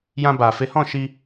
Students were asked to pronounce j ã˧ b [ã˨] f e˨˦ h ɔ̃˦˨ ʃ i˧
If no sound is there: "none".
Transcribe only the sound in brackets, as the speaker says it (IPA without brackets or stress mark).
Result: a˨